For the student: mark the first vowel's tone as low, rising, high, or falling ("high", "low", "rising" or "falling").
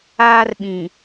high